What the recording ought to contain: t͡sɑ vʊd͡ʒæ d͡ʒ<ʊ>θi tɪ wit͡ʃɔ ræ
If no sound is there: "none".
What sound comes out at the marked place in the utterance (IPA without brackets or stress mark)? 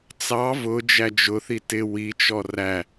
ʊ